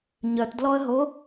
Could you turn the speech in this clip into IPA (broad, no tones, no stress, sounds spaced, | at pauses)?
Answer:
ɲ œ t d l ɔ ə̯ ɦ o